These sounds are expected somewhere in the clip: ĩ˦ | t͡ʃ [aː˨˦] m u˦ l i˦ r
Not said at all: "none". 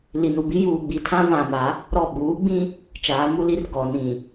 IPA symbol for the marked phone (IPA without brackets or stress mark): aː˨˦